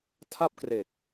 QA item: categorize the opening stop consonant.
aspirated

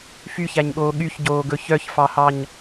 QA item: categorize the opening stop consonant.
implosive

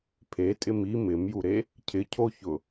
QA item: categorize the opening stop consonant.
aspirated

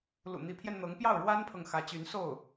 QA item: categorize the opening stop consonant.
aspirated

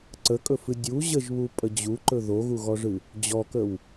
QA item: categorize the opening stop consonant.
click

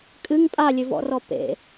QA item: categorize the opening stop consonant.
ejective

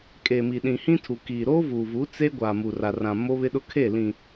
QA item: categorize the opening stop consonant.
ejective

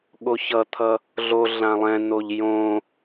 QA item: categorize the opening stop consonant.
implosive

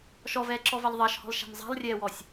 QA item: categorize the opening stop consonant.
click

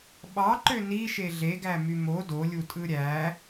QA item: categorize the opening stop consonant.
implosive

